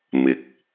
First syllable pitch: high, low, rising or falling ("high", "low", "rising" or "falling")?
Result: low